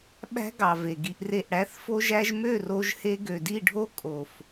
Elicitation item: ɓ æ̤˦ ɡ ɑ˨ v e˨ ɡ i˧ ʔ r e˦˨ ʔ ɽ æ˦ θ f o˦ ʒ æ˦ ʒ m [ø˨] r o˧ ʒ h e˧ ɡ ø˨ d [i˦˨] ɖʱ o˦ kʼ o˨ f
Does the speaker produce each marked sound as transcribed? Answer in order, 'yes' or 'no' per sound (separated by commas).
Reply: no, yes